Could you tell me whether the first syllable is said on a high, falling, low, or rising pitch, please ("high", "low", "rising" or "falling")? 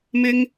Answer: high